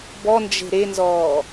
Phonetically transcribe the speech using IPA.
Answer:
bɔnd͡ʒe̤ ɾenzɔː

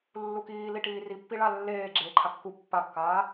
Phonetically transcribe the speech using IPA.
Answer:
lːukiːliʈiː ripːiɭa lːeː ɡ͡ǁeːǃʰakːu pːakːaː

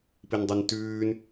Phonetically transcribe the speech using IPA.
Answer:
pindˤʉntʉːn

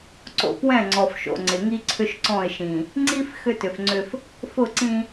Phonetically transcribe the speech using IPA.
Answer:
ǀo̰˨pwɛ̃˦˨ŋ͡ǀɔ˨fʃo̰˨ ŋ͡ǀɪ˨ŋi˦ ǀʰʏ˦ʃǀɔ̃˦˨ɪ̯ʃĩ˨ | ŋ͡ǀi˦f xʏ˦tʏ˨fŋ͡ǀʏ˦f | fʊ˦˨ǀĩ˦

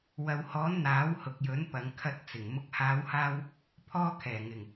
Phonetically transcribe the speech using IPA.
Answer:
wɐ˨whɔː˨˥n n̪aː˨˥whʊ˨k̚jɵ˨˥n pɐ˨˧ŋkʰɐ˧t̚t͡sɪ˨˩ŋ mʊ˨k̚haː˨˧whaː˧w | pʰɔː˧kʰɛː˨˩ŋɪ˨˩ŋ

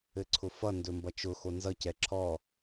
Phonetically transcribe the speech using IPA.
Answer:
ɘǀʰʊfʌ ndɵmbʌt͡ʃʊ xonzʌ cɛǁʰɔ

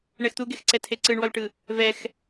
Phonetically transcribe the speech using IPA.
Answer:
ɳɛxt̪uɡexǀɛ tʰeǀɯɳwɔlʈɯ | vɛx

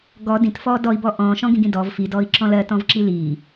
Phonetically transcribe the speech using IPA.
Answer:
ɡɔ dĩtfɔː dɔi̯bɔ ʔɔ̃ːʃɔ̃ɡĩɡĩ dɔv fidɔːi̯ǁɔ̃ lɜtɔ̃vǁi liː

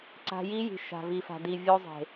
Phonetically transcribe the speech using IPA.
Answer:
ǀa̤˧ji˦ji̤˨ ʃa̤˨vi˨fa̤˨di˨ vʲo˧zˤe̤˨

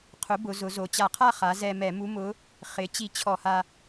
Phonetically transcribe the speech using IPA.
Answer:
qʰʊ˩˥bʊ˩˧ zʊ˩˧zo˩˧t͡ɕa˧˩˧qʰa˥˨ χa˩˧ zɛ˧ mɛ˧˩˧mu˧˥mʊ˧˥ | χɪ˩˥ t͡ɕi˧t͡ɕʰɔ˧˩˧ha˧

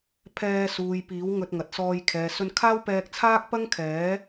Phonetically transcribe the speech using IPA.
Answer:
pʰɛː˧suː˨jpiː˨˥w ŋɵ˧t̚ŋɐ˨t̚sɔː˧j kʰɛː˨sɵ˧nkʰaː˥w pɛː˧k̚t͡sʰaː˥k̚pɐ˥ŋkʰɛː˨˥

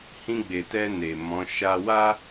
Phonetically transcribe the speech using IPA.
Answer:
hĩ˧ɡ͡be˨tɛ˧ ne˨mɔ̃˨˦ ʃa˧wa˦

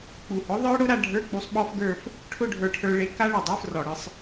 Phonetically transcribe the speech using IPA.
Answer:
k͡pu˨˩hʊ˨˥ðˤə˞˦˥ɽʊ˨˥ ɾa˧ɖʱə˞˧˥˧k͡pu˧sˤɓɔ˦˥f ɡə˞˥˧f | ʈʰʊ˥˧ɖʱə˞˧ʈʰə˞˧ ɭe˨˥ ka˦˥ɭʊ˨˩dˤə˞˧˥˧frɔ˨˩ ɽɯ˧sˤ

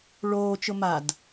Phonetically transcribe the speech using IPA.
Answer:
ɭoːt͡ʃʊ mad

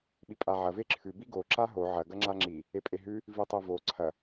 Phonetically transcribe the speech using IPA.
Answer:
ɓipʼaʕɐ veǁʰʉ biɡo ǁaɦo ʕɐ ɡɐŋ͡ǁaŋ͡ǁi | epʼeɦʉ | vitˤevo ǀʰɐ

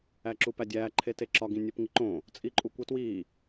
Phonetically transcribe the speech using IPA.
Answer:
æǁupædʲæː ǃʰeteǁɒ ɡĩnʲopŋiǃõ | t͡sʼiǃʼukʷetwiː

